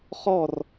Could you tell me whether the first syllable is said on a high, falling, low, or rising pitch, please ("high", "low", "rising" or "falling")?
falling